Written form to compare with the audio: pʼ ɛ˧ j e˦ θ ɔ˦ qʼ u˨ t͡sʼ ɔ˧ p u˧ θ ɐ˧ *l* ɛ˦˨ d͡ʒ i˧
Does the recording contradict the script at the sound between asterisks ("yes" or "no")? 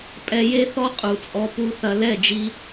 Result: no